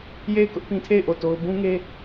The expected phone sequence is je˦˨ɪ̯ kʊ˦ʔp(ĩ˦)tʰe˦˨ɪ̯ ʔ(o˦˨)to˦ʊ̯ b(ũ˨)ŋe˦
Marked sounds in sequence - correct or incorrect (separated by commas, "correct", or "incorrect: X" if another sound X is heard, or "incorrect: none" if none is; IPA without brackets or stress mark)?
correct, correct, incorrect: ũ˦